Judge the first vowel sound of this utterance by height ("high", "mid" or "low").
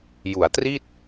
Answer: high